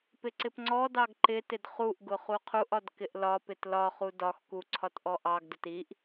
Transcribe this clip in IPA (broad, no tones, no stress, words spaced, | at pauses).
pɪǀɪpŋ͡ǀɔdɑɡ ǃɪtɪd χuʔɡʊ χuqʰuʔɒd kɪʔlɒpɪt lɒχu dɒxku ǀʰɒtʔɔʔɑɡdʊt iʔ